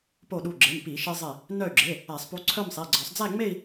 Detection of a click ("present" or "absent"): present